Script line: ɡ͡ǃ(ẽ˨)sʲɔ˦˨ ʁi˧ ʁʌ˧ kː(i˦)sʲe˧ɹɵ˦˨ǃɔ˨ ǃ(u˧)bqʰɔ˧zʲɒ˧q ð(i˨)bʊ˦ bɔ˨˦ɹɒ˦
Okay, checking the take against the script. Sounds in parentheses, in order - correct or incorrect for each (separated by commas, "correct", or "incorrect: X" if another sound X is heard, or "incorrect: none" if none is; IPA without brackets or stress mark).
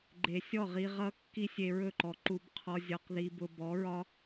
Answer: incorrect: e˨, correct, correct, incorrect: i˦